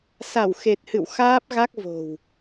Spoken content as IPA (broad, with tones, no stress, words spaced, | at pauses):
sa˧˩w xe˨˩t̚hɨ̰˧˨w xaː˦˥p̚ɣa˦˥k̚vo̤˨˩w